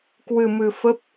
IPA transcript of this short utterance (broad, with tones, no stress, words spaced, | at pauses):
kwɨ˧mɨ˧fə˦˥p̚